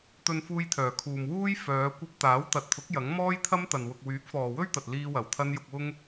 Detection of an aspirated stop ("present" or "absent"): present